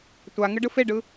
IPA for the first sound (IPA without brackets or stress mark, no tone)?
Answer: tʷ